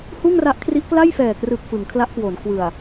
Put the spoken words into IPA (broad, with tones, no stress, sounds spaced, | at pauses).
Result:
h uː˥˩ ŋ r a˦˥ ʔ kʰ r i˦˥ ʔ k l a˥˩ j f ɛː˨˩ k r ɯː˨˩ k̚ f ɯ˩˦ ŋ kʰ l a˦˥ ʔ k w o˩˦ n kʰ w ɯ˨˩ a̯